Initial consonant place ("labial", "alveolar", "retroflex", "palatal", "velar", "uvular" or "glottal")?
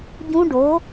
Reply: palatal